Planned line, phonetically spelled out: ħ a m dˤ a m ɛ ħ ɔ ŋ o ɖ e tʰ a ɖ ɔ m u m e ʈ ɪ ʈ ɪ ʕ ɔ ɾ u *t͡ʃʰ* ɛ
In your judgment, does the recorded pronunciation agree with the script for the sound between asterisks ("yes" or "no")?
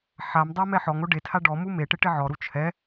yes